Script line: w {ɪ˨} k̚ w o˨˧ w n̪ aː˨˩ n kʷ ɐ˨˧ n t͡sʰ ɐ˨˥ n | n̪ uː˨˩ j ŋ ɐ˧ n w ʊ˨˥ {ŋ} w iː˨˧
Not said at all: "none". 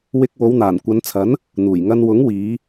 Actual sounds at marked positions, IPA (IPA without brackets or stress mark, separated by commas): ɪ˧, ŋ